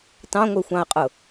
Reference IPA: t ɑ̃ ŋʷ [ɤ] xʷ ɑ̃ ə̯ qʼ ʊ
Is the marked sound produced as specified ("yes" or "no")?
no